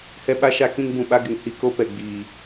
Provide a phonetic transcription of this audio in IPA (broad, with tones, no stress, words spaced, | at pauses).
hɛ˦ɓa˦ʃa˦ kĩ˦ŋbũ˨ɓa˦ɡɪ˨ŋ hi˦ko˦ pɛ˨ɡ͡biː˨